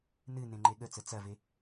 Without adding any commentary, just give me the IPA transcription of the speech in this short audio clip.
nɨ nẽŋ͡ǃeɠət͡sə t͡sɐve

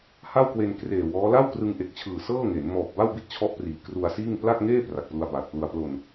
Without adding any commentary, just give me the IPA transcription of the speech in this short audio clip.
ha˥˩wkwe˧n kreː˨˩wɔː˦˥ la˥˩wkrɯ˧ŋʔe˨˩k̚t͡ɕʰɯː˨˩ sɤː˥˩ŋe˩˦n mɔː˨˩p̚ba˥˩w bi˥˩t̚t͡ɕʰɔ˦˥ʔpriː˩˦ kru˧a̯siː˥˩ŋ pla˥˩k̚ŋeː˥˩ pra˨˩k̚plu˧a̯baː˨˩t̚plu˧a̯ plo˧n

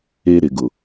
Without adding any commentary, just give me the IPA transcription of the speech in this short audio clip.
e˦ ɾɪ˨ɡʊ˨

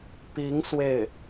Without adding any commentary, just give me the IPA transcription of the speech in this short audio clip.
pi˧˥ŋ swe˥˩ɪ̯

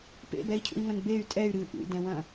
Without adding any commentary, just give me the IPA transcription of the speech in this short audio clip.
pḛbɛi̯cʰṵi̯ŋɐ̃n bey̯ tʼɛy̯ ɾɨ ʔṵdɛ̃wɐ̃

